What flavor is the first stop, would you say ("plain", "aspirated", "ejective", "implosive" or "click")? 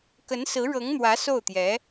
plain